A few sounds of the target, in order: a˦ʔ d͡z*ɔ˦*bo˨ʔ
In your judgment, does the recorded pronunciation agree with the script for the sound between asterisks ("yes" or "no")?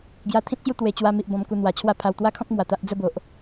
no